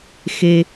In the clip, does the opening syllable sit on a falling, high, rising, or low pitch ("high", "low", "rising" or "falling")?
high